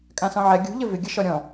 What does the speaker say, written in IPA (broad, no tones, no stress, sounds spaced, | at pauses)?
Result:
kʼ ã s ɔ̃ ʕ ɛ ɡʲ ṳ ʎ ə v ɪ ɡʲ ə ʃ ɔ ɾʲ ɔ̃